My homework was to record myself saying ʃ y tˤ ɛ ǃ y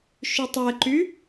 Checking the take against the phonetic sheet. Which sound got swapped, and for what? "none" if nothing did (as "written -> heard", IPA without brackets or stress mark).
none